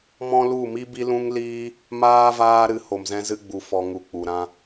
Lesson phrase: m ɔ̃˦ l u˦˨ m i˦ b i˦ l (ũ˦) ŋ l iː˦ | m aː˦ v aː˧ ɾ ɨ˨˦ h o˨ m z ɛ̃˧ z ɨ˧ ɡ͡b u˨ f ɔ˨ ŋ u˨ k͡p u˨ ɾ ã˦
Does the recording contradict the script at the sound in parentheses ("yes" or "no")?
no